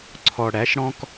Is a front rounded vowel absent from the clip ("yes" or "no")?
yes